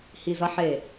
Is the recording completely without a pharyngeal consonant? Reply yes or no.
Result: no